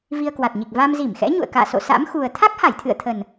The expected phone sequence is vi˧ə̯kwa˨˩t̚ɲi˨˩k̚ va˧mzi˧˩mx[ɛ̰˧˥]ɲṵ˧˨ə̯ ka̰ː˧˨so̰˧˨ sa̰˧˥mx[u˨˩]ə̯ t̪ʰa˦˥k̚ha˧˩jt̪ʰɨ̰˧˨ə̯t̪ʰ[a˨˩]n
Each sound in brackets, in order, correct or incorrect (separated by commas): correct, correct, incorrect